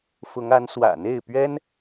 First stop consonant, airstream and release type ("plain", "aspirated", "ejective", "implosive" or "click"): plain